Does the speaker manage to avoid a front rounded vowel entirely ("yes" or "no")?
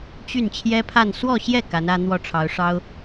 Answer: no